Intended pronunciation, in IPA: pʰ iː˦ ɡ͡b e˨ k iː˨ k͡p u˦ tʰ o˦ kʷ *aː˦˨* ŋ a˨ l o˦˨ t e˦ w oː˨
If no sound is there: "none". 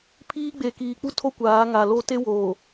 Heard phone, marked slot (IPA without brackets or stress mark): aː˨˦